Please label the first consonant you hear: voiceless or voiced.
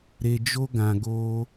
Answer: voiced